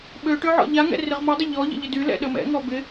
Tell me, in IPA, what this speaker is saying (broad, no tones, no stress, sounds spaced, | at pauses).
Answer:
ɓ ø ʈ ø ʕ ɔ̰ ʎ a ŋ ɛ̰ r ɪ ʁ m ɔ dˤ ɪ ʎ ɔ ʎ ə̰ ʎ ɪ d y l ɛ̰ ɗ ə m ɛ̰ ŋ ɔ b ɪ